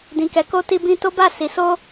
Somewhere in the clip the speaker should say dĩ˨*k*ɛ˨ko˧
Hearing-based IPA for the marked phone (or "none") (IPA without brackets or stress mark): k